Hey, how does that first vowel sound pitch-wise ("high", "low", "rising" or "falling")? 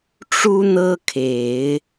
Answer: high